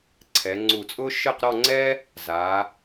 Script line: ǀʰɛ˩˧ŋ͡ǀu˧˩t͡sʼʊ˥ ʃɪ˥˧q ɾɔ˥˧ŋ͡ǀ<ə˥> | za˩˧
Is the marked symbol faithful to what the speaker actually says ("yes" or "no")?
no